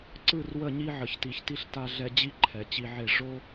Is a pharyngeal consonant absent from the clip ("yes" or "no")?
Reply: no